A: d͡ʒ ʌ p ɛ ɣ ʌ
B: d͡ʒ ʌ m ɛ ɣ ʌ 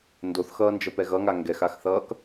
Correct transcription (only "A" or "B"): A